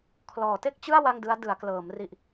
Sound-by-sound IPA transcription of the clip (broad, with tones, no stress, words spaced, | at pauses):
kʰlɔː˩˦te˥˩k̚t͡ɕɯ˥˩a̯ wa˥˩ŋdɯ˦˥a̯ dɯ˩˦a̯klɤː˩˦mri˨˩ʔ